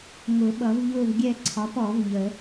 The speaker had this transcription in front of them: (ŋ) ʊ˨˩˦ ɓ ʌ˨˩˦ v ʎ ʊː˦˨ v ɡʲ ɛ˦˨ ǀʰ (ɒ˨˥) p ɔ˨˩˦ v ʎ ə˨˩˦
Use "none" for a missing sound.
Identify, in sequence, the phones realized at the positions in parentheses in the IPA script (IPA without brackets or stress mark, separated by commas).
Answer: ŋ, ɒ˨˥